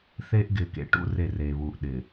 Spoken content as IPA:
θ eː˦ ʔ ɡ ɪː˨ k ḛ˨ ʈ ṵ˦ r e˦˨ r eː˨ β uː˨ ʔ ɗ ɪː˨

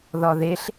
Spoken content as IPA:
ð ɒ ð e ɬ

